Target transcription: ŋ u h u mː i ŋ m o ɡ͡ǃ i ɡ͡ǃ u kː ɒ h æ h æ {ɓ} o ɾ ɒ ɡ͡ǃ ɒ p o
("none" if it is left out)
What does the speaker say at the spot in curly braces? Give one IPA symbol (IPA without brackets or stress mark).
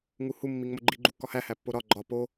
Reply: pː